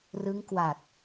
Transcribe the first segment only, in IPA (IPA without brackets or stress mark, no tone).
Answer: r